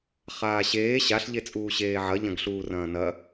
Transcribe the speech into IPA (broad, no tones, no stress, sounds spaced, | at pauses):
χ aː ɕ eː ɕ a ɬ ʎ e t͡sʼ uː ɕ eː ʕ ɐ ʎ ɐ̃ ɡ ɬ uː r ɐ̃ː n ɐ